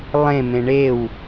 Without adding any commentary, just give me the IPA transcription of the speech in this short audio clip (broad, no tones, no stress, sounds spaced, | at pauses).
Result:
lˠ ẽ m ẽ ɳ e w